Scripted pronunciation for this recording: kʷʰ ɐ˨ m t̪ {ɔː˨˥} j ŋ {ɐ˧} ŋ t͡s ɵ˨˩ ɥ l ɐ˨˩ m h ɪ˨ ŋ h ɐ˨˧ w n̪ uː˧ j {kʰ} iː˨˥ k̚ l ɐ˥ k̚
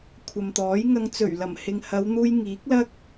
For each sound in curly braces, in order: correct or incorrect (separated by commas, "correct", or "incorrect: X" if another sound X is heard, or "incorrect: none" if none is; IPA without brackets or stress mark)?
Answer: correct, correct, incorrect: ŋ